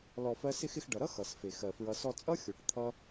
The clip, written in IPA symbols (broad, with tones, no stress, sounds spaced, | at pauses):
l ɔ˧ f ɜ˦ s ɪ˧ x ɪ˧ x ɖ ʌ˨ ɾ ʌ˦ x ʌ˨ s f e˨ x ɜ˧ f ɹ ʌ˦ s ɔ˧ t͡sʼ ʌ˦ xʲ o˨ ʈ t̪ʰ ʌ˦